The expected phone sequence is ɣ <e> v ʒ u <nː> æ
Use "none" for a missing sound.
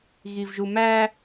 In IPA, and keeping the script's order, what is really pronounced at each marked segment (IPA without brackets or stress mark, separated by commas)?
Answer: i, m